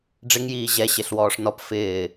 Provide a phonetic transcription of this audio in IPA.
ɖ͡ʐ ɪ ŋ j iː ʑ ɛ ɕ ɪ ɬ w ɔː ʂ n ɔ p f ɪː

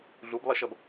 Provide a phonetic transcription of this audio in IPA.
ɮ u b lˠ i ʃ ʌ b

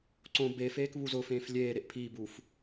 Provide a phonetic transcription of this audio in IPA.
ǀ õ b e f eː k β u z ʊː f ẽː f lʲ eː ɾ e ʔ pʰ iː b uː f

